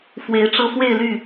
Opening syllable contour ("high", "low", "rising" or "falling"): rising